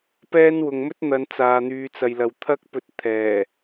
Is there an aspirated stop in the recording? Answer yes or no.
yes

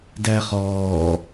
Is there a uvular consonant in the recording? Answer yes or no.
yes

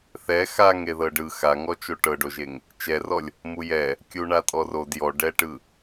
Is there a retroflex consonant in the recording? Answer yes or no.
yes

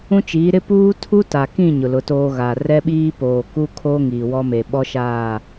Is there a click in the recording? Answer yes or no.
no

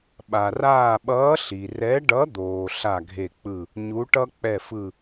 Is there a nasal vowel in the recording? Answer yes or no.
no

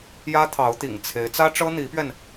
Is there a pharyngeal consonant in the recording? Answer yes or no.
no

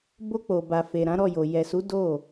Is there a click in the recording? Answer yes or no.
no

